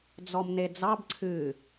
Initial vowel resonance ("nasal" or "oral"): oral